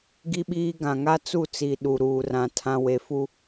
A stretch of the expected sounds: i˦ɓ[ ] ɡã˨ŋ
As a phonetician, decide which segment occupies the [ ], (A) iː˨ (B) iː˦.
B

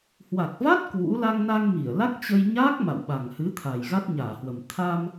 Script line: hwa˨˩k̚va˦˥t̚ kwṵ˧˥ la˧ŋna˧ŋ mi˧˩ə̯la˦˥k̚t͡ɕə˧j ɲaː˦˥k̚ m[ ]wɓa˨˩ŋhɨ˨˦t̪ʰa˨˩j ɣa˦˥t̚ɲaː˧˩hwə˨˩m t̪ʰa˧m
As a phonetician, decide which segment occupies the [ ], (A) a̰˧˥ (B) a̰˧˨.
B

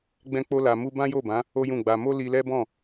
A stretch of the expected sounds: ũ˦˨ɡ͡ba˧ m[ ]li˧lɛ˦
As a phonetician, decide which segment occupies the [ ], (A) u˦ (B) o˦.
B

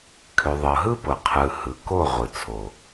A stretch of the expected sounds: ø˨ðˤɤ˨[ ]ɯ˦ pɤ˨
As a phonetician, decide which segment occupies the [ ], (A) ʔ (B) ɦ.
B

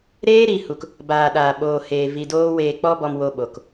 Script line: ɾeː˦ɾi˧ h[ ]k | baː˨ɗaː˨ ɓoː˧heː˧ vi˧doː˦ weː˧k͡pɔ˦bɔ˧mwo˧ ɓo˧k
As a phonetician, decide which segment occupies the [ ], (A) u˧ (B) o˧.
A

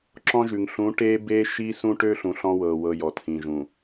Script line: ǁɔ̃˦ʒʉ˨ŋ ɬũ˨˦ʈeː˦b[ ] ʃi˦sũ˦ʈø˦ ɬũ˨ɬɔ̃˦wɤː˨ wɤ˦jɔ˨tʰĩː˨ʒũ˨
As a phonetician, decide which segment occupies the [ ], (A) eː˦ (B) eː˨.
A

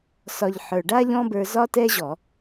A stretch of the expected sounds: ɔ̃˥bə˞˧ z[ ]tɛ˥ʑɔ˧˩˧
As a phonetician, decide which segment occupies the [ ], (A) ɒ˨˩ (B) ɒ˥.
B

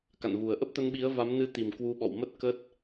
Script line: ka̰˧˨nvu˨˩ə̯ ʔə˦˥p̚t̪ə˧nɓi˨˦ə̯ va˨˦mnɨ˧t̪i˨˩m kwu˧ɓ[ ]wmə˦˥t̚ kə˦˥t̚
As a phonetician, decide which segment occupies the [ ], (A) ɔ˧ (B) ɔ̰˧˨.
B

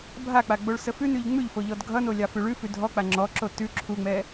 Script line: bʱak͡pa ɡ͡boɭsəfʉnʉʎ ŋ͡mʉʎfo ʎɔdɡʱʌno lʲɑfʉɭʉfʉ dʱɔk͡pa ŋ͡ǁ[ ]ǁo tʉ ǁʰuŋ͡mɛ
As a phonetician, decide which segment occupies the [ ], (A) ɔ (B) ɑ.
A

